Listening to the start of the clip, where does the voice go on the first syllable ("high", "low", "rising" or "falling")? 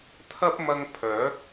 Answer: high